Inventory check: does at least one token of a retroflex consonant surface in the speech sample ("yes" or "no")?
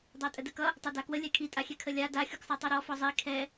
no